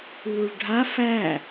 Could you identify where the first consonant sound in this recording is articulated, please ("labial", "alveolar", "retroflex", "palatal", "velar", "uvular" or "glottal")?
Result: retroflex